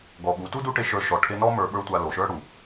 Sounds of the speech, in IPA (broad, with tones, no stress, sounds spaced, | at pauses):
ɡ ɔ˨ ɓ u˨˦ t u˦ d u˦ ʈ e˧ ʃ ə˞˧ ʃ ɔ˨ ʈʰ e˧ n ɔ˦ m ə˞˧ ɓ ə˞˦ tʷ a˧ l o˨ ʃ ə˞˦ ɽ u˨